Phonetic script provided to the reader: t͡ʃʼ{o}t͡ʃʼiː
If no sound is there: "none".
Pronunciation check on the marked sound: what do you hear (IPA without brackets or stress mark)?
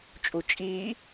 u